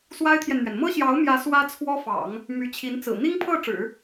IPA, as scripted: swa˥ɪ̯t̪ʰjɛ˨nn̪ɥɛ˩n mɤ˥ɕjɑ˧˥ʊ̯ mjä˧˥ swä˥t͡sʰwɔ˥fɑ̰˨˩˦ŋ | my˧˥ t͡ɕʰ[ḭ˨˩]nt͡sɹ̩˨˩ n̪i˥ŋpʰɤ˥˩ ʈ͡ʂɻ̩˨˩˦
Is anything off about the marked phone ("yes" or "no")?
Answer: yes